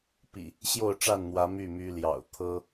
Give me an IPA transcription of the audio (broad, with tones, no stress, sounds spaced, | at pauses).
p ḭ˨˩ | ɕ j o˥˨ ʊ̯ ʈ͡ʂ a˥˨ n n̪ w ä˨˦ m y˥˨ m y˦ l j ɑ̰˨˩ ʊ̯ t̪ʰ ɤ˦